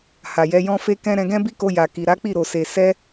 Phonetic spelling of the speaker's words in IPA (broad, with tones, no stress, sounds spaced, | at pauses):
h a˨ j ɛ˨˦ j ɔ̃˦ f e˦ k ɛ̃˦ ɾ ɛ̃˧ ɡ ɛ̃˦ b i˦ k o˧ j a˨ k i˨ ɾ a˨˦ k͡p i˦˨ ɾ o˨ s e˨ s ɛ˧